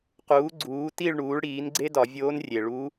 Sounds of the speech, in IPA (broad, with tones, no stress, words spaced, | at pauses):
quː˩˥ɡ͡ǀuː˩˥ti˥˨ɭ ɳuː˩˥ɭɽiː˩˥nɡ͡ǀe˥dɒ˧˩˧ vʲoː˧˥nrʲe˩ɭu˧˥